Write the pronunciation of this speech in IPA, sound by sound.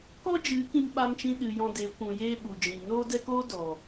k ɔ˦ d͡ʒ ɨ˨˦ k ĩ˧ m ɓ a˧ m t͡ʃ ĩ˧ ɗ ɨ˨ j ɔ̃˧ d e˨˦ kʷ ũ˨ j eː˧ ɓ u˨ d͡ʒ ĩ˨ n oː˦ d ɛ˦ k oː˦ d ɔ˨

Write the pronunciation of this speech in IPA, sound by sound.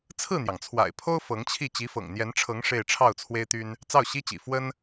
t͡sʰ ɹ̩˥˩ n̪ j ɑ˩ ŋ t͡sʰ w a̰˨˩ ɪ̯ pʰ o˥ ʊ̯ f ɤ˧˥ ŋ t͡ɕʰ i˥˩ t͡ɕ i˧˥ f ɤ̰˨˩ ŋ n̪ j ɛ˧˥ n ʈ͡ʂʰ ɤ˧˥ ŋ ʂ e˥˧ ɪ̯ ʈ͡ʂʰ ɑ˥˩ ʊ̯ t͡sʰ w e˥ ɪ̯ t̪ y˥ n | t͡s ɑ˥˩ ʊ̯ ɕ i˥ t͡ɕ ḭ˨˩ f w ə˥ n

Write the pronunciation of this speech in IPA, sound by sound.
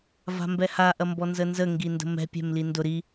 v a̤ m b ɛ h a ʔ ɐ m b ɔ n z ə n z ə ŋ ɡ i n d ə̤ m ɛ̤ pʲ ɛ̤ m l i n d ʊ ɾ i

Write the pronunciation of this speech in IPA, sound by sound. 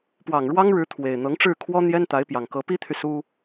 p w ɑ˨˩ ŋ ɻ w ɑ˥ ŋ ɻ ɻ̩˧˥ t̪ʰ w e˨˩ ɪ̯ n̪ ɤ˧˥ ŋ ʈ͡ʂ ɻ̩˥˩ kʰ w ɔ˥ n̪ j ɛ˥ n t̪ a˧˥ ɪ̯ p j ɑ˨˩ ŋ k ɤ˧˥ p i˥ t̪ʰ y˨ s u˥

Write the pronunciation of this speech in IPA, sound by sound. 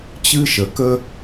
t͡ɕ ɨ˥ ʃ ə˧ k ə˥

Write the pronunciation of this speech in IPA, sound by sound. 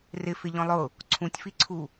r ɪ f ɪ ʎ ɔ̃ lˠ ʊ | ǀʰ ũ tʲ f i ǀʰ u

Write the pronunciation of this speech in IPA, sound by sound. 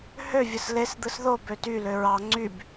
h ø vʲ ɯ s l e s d̪ ɯ s ð o b ø t y l ø ɹ ɑ ŋ͡ǀ y b

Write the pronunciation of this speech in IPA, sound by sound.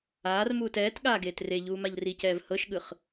aː r m uː t ɛː t ɠ aː ɡ eː t r e ʎ uː m a ʎ r i c ɛː v h ɤ ʃ ɠ ɯ χ

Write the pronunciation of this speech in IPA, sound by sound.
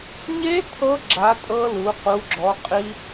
ɲ e˦˥ tʰ ɤ˦˥ ɡ͡ǁ a˨˦ tʼ ɤ˦˥ l u˨˦ q u˨˦ ɡ͡ǁ ɔ˨˦ qʼ i˦˥

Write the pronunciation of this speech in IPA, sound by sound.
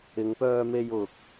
ɪ˨˧ ŋ p œː˧ m e˧ j ʊ˨ k̚

